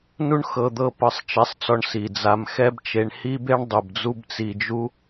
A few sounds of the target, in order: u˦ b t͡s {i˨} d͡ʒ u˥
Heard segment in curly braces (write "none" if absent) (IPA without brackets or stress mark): i˨